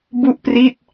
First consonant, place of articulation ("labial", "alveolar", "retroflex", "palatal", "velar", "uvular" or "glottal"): labial